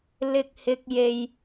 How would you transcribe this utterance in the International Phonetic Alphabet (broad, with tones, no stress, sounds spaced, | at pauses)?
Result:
l ɪ˥ k̚ h ɪ˥ k̚ j e˥ j